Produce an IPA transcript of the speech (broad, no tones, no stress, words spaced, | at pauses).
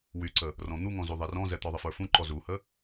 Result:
wyǀə | rɔ̃n̪uŋɔ̃zu ðˤɛrɔ̃zɛ t̪ɔðˤəfə˞fũ ǃɔzuhə